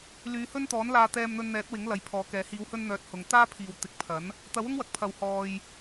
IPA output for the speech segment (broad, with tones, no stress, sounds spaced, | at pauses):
l yː˨˧ h ɵ˥ n t̪ ɔː˨˥ n l aː˧ t̪ ɛː˧ m n̪ ɵ˧ n n̪ ɛː˨˥ t̚ w ɪ˨˥ ŋ l ɐ˨˥ j pʰ ɔː˨˧ k ɛː˨˥ h iː˨˧ w h ɵ˧ n n̪ œː˨˥ t̚ h ʊ˨˧ ŋ t̪ aː˥ pʰ iː˨ w t̪ ɪ˨˥ k̚ pʰ ɐ˨˥ n | t̪ ɐ˨˥ w ʊ˥ ŋ w ɐ˨ k̚ pʰ ɐ˨˩ w h ɔː˨ j